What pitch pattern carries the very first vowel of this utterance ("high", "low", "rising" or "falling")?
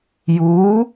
rising